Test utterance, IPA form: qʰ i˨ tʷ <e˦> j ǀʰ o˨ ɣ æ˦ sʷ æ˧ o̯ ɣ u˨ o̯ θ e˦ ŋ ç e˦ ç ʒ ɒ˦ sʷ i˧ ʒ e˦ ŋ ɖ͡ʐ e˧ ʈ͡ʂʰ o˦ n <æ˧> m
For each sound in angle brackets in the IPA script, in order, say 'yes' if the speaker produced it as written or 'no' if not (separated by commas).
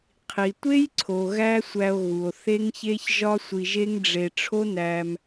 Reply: yes, yes